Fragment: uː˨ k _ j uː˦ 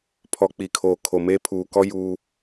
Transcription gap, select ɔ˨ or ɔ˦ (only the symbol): ɔ˦